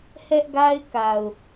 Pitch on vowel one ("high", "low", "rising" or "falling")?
high